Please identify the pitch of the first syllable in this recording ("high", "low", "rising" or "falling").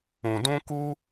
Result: low